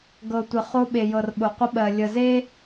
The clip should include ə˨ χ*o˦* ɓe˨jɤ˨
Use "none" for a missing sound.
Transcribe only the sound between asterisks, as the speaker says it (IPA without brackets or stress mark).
o˦